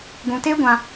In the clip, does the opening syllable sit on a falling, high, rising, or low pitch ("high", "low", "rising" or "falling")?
low